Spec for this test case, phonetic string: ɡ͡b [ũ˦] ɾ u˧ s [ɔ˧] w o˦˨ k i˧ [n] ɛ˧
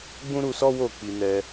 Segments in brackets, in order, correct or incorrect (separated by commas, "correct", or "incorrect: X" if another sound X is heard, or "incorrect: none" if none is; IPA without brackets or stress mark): correct, incorrect: ɔ˦, correct